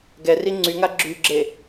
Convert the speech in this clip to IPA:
ɡ ɛ r i ŋ͡ǀ y ŋ a ɡ͡ǁ y ɡ͡ǁ e

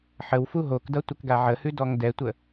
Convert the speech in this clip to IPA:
ħ ə w f u ɦ o k d ʌ tʷ ə k ɡ a ʕ ə h ʉ d ɔ ŋ d ɛ tʷ ə

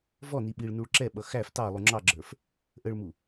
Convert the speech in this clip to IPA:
v ɔ n i ɓ i ɭ n u ɭ ǁ ɛ ɓ ʌ x æ f t ɑ lˠ u ŋ͡ǁ ɑ ɡ͡ǁ ə˞ f | ʔ ə ɭ m u

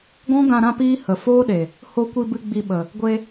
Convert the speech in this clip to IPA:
ɡ ɔ̃˦ ɡ ã˧ ɾ ã˦ p iː˦ h ə˨ f oː˦ ɗ e˨ | h o˧ kʷ i˧ b ɨ˧ ɡ͡b i˧ ɓ ə˨ | ɡʷ e˧

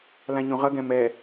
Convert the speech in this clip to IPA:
l ã ɲ ũ ʁ ʌ ɡ ɛ̃ m ɛ

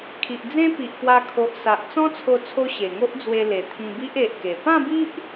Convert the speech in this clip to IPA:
kʰ i˨ ʔ d͡z ẽ˦ p i˨ ʔ p w a˧ kʰ o˨ ʔ s a˨ ʔ t͡s ɔ̃˦ t͡sʰ o˧ t͡sʰ o˧ ɕ e˨˩ ŋ o˦ ʔ d͡z w e˧ l e˨˩ t̪ʰ ĩ˧ b i˦ ʔ e˨ ʔ k e˨˩ p ã˥˧ b i˦ ʔ

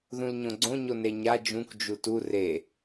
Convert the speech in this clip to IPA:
ð ũ l ɲ õ ɡ͡ǀ õ ɲ o n e ɲ a d͡ʒ ũ k d͡ʒ u t u r e

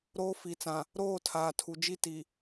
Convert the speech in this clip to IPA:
ɾ oː˦ f i˨ t͡s ã˨ | ɾ oː˦˨ tʰ aː˨ tʰ u˨ d͡ʒ i˦˨ t i˨

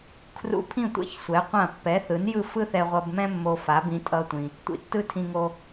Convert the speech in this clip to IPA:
kʰ r ṵ˧ pʰ ĩ˥˩ tʷ ɛ̰˧ ç sʷ ɛ˩˥ qʷ ã˥˩ pː ɛ˩˥ θ ɯ˩˥ n j ɯ˥˩ f ɯ˥ θ ɛ˧ ʁʷ ʌ˧ b m ɛ̃˥ mː o˧ f a˩˥ b ĩ˧ tʼ ʌ˧ tʷ ĩ˩ | tʷ ḭ˩ tː ɯ˥ tʰ ĩ˧ ŋ o˧

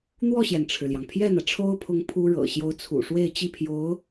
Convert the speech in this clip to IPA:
n̪ w ɔ˥˩ ɕ j ɛ˩ n ʈ͡ʂʰ ɻ̩˩ l j ɑ˩ ŋ pʰ j ɛ˥˩ n̪ ä˩ ʈ͡ʂʰ o˥ ʊ̯ pʰ ʊ˧˥ ŋ pʰ u˥ ɻ ɤ̰˨˩ ɕ j o˧˥ ʊ̯ t͡sʰ ṵ˨˩ ʂ w e˥˧ ɪ̯ t͡ɕ i˥˩ pʰ j o˧˥ ʊ̯

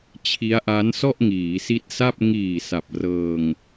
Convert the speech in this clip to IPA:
t͡ɕʰ i˦˥ a̯ ʔ a˦˥ n s ɔ˥˩ ʔ ŋ iː˩˦ s i˦˥ t̚ s a˥˩ p̚ ŋ iː˨˩ s a˨˩ p̚ r ɤː˧ ŋ

